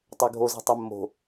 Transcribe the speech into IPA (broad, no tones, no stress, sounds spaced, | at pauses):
tˤ ø ɡʱ o z i̤ tˤ ɛ mː o̤